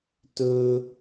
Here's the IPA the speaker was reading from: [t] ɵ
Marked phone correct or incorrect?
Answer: correct